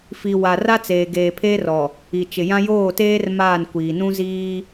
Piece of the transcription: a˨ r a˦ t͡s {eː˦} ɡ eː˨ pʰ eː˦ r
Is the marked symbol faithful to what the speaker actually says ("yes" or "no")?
no